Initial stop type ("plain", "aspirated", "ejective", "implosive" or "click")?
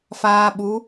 implosive